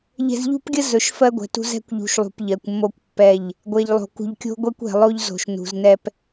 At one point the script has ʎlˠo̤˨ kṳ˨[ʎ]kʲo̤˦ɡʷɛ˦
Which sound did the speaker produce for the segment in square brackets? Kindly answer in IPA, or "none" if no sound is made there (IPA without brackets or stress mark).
ʎ